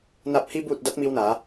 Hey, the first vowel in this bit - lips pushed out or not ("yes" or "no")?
no